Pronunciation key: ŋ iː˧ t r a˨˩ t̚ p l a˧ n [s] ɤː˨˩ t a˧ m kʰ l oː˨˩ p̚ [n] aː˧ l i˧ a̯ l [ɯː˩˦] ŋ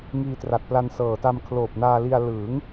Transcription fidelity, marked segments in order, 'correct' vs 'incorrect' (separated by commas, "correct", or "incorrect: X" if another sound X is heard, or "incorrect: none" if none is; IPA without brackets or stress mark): correct, correct, correct